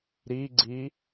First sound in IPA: ɾ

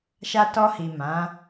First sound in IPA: ʃ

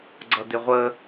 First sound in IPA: ɡ͡ǀ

